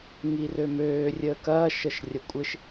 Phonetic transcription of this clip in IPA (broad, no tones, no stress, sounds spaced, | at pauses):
ŋ i r ø m øː rʲ əː k ɐː ʃ ə ʃ rʲ ɐ kʷʼ ɪ ʃ